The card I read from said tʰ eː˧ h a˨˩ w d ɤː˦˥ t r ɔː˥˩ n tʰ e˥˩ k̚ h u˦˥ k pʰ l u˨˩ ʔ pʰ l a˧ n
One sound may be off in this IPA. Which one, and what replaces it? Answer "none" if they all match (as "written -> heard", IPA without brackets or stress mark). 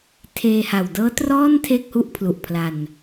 k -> ʔ